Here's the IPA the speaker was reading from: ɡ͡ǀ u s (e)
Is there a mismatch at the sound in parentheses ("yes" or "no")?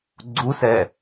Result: yes